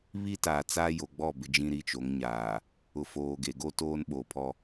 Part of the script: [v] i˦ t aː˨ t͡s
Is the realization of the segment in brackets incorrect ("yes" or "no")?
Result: yes